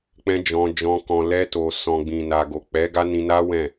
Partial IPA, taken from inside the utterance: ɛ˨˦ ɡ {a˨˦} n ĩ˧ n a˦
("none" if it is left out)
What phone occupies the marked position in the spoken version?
a˦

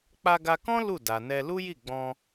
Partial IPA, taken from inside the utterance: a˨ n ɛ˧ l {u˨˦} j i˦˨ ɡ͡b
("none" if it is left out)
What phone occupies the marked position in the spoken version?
u˦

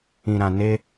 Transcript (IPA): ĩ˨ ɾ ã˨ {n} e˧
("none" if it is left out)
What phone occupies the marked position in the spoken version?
n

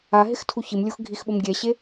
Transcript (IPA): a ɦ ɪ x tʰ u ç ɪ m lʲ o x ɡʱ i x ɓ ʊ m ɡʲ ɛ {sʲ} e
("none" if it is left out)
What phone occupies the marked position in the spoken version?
ɕ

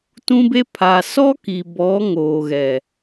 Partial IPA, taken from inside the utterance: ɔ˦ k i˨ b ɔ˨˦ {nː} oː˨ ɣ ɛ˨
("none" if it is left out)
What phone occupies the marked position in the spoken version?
ŋ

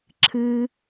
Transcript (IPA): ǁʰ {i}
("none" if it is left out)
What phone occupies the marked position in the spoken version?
ɨ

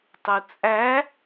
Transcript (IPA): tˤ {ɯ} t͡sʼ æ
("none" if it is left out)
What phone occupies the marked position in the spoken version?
u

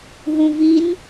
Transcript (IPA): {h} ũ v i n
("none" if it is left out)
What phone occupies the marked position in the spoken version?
ɦ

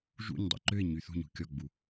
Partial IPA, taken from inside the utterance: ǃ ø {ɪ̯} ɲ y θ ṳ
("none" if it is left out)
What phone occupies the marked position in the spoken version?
ɪ̯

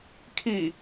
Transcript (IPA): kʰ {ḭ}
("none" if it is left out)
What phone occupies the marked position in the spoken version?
i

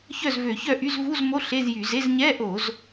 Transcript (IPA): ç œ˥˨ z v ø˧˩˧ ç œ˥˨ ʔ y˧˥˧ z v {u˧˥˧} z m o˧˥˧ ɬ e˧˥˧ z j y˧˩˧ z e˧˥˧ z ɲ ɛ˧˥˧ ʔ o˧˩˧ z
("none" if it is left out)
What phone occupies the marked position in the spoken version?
u˧˥˧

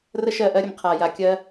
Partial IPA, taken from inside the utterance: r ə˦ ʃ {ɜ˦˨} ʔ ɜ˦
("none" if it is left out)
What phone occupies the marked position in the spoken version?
ɜ˦˨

